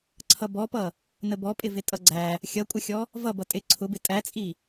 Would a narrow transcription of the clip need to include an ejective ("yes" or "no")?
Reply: yes